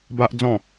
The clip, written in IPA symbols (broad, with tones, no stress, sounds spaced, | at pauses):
b a˦ ʔ d͡z ɔ̃˥˧